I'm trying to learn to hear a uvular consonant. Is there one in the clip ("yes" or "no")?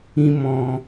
no